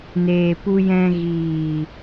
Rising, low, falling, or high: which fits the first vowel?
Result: low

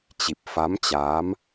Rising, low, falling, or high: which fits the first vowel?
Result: low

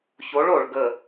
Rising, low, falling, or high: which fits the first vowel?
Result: rising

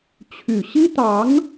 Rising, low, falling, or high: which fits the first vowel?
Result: low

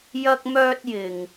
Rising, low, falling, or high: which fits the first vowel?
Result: high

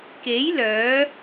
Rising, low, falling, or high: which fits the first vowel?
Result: rising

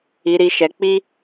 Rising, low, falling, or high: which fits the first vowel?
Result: low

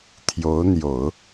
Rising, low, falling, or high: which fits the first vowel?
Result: rising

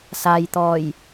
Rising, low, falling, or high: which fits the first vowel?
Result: low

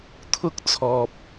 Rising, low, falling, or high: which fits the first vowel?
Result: high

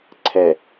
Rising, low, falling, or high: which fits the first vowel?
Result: low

